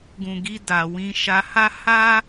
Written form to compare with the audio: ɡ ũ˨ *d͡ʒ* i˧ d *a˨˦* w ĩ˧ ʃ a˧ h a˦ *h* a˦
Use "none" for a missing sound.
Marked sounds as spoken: ɡ, a˨, h

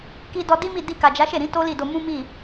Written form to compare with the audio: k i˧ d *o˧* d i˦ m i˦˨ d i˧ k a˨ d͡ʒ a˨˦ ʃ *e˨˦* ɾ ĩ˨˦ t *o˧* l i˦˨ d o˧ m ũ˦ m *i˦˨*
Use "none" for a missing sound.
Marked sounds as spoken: ɔ˧, e˦˨, o˦, i˦˨

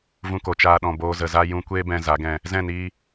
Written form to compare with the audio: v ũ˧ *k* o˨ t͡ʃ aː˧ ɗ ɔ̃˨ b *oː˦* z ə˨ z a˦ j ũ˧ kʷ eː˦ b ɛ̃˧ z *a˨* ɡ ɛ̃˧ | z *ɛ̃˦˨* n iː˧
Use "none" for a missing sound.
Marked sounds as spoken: k, oː˧, a˨˦, ɛ̃˦˨

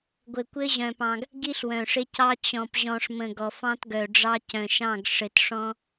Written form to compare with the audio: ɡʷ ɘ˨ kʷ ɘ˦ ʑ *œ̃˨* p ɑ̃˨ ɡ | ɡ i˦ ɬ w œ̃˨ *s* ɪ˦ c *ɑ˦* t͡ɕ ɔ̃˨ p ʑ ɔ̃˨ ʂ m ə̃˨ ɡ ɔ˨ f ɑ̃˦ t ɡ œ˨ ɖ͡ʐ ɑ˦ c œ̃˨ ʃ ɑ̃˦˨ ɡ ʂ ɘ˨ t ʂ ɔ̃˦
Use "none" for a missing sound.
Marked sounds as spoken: œ̃˨, ʂ, ɑ˦

